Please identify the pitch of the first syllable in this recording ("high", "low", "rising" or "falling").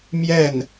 falling